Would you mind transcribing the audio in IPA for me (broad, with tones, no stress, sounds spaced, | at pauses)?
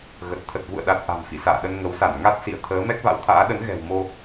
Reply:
ɣ ə˨˩ t̚ t̪ʰ ə˨˩ t̚ v ṵ˧˨ ə̯ ɗ a˨˩ t̚ ʔ a̤˨˩ m f ḭ˧˨ s a̰ː˧˨ ɗ ə˧ n ŋ ə˨˦ w s a˧˩ n ŋ a˦˥ t̚ s ḭ˧˨ ə̯ t̪ʰ əː˨˦ m ɛ˦˥ k̚ v a̰˧˥ w t̪ʰ a̰ː˧˥ ɗ ə˨˦ n ɣ ɛ̤˨˩ w m o˧